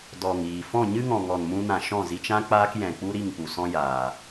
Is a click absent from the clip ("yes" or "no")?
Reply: yes